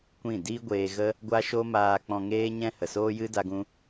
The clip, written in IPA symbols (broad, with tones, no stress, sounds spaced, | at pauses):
kʷ ĩ˦˨ d iː˦ ɡʷ eː˧ ɣ ə˦ | ɡʷ a˦ ʃ o˦ m aː˧ k͡p ɔ̃˧ ŋ eː˦ ɲ ɛ̃˦ h ə˨ s oː˦ j ɨ˦ d a˦ ɡ ũ˦